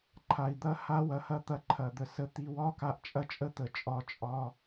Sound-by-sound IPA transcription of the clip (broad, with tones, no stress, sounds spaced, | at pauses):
ǃʰ a˨ i̯ d̪ ɐ˦ h a˦ w ɐ˧ h ɐ˦ t̪ ɐ˧ ǃʰ ɐ˨ d̪ ə˨ s ə˧ t̪ i˧ w ɒ˦ k a˧ ʔ t͡ʃʼ ɐ˦ t͡ʃʼ ə˦ t̪ ə˨ t͡ʃʼ ɒ˧ t͡ʃʼ ɒ˧